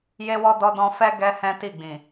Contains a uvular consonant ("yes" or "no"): no